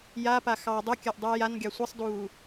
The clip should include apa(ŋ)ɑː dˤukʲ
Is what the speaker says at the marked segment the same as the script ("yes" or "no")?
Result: no